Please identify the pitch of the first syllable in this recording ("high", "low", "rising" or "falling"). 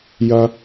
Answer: high